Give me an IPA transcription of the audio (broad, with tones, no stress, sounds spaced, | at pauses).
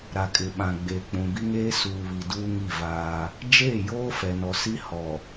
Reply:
ɾ a˨ kʼ ɪ˨ ɓ ã˨ ɡ͡b eː˨ k͡p ũ˨ b i˦ ŋ eː˦ s uː˨ β i˨ d uː˦ ŋ i˦˨ v aː˦ | d͡ʒ eː˦˨ j oː˦ f ɛ˨ n ɔ˨ s i˦ h ɔ˨